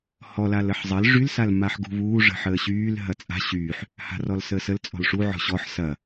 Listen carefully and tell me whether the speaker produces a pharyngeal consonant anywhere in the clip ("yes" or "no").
yes